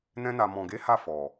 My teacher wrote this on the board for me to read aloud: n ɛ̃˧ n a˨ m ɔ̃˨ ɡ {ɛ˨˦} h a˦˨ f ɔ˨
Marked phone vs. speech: incorrect: e˨˦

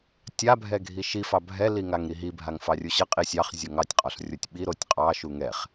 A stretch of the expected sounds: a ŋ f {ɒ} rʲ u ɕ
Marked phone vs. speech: incorrect: ɑ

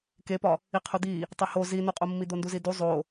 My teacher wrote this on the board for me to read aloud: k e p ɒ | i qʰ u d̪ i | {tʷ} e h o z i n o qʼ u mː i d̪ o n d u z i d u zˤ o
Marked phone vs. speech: incorrect: tˤ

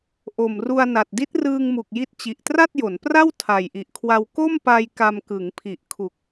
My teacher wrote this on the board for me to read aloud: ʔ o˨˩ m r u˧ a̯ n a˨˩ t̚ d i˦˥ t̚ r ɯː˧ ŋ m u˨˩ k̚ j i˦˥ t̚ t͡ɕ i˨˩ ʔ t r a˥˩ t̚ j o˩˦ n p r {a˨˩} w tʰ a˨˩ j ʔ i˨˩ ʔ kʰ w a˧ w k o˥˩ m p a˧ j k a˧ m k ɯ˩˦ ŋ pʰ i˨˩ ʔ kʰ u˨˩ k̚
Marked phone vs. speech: incorrect: a˥˩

